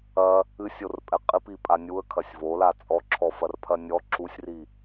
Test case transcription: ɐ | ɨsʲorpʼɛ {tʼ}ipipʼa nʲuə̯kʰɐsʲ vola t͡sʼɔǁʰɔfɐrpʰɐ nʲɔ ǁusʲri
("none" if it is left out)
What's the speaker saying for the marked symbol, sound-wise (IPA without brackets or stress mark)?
qʼ